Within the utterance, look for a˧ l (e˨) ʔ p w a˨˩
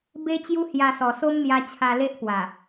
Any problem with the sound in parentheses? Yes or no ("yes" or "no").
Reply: yes